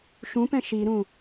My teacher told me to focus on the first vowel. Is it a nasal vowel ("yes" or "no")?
yes